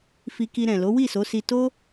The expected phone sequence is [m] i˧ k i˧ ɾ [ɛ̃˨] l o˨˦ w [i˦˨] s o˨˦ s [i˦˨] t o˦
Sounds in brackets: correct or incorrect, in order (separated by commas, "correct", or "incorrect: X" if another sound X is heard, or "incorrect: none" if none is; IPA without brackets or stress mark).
incorrect: f, correct, correct, incorrect: i˧